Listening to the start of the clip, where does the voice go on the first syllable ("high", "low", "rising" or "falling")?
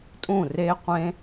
falling